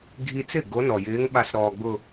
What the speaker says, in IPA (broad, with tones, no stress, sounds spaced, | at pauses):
ɡʱ i˧ t͡s ɪ˥˩ ɡ o˧˥ n ɔ˩ j ɪː˧˥ ŋ ɓ a˧˥ s ɾ ɔː˧ ɡ͡b ʊ˥˧